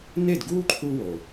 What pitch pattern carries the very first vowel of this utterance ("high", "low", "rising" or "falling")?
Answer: falling